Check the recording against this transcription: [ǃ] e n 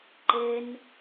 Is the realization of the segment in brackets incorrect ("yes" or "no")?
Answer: no